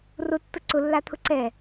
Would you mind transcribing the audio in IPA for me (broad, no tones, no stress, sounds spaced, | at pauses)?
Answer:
r ʊ tː ʊ ǀ ʊ lː a t̪ʰ ʊ ǀ ɛ